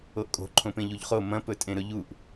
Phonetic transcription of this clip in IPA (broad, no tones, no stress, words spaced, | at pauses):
oʔkʼo̤ ǃʰõpẽʎuʎχo mɐ̃ pɵtʼẽɾɵʎuʔ